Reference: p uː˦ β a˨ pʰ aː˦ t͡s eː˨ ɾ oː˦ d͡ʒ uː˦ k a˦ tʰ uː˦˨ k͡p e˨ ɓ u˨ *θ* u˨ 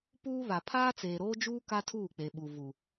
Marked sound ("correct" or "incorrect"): incorrect